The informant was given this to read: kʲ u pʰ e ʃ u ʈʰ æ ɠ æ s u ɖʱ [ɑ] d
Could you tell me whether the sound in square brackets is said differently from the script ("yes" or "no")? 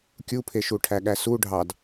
no